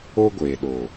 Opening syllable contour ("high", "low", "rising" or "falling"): high